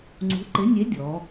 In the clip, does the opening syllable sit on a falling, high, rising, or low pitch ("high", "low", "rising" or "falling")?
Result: rising